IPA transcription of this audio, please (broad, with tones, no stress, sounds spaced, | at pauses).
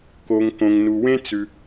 k o˩ ŋ k õ˩ ŋ n u˩ w ẽ˥ t͡s ʉ˩